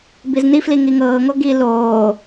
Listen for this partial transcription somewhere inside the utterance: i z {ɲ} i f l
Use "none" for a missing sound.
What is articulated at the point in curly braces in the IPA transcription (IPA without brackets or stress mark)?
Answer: n